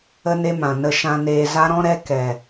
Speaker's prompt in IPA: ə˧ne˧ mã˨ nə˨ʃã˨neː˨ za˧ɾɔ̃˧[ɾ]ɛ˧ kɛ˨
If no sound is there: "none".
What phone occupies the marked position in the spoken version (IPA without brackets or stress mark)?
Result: ɾ